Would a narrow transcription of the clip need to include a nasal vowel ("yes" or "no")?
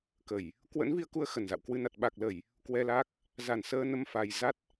no